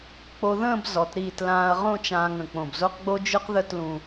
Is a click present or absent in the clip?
absent